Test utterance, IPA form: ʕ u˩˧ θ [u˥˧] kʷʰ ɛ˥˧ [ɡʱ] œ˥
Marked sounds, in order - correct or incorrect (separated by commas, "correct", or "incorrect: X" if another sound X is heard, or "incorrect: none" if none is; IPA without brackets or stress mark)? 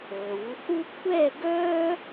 incorrect: u˥, incorrect: ɡ